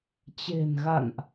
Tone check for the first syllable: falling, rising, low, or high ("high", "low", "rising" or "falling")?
low